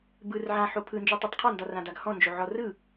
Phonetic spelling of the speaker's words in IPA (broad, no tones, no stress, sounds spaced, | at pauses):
b ɯ r ʕ ã ħ o pʰ ɯ n d͡ʒ u tˤ ɯ tˤ qʰ ɒ n d ɒ r ã d a ɡ h ɔ̃ n d͡ʒ o ʕ ɔ r ɯ